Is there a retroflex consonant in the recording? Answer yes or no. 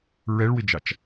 yes